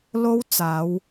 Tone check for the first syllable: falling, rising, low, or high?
high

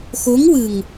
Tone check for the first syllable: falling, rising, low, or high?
rising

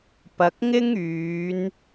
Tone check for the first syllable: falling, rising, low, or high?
low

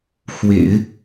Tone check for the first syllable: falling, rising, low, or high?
low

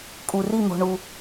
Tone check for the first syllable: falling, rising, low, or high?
low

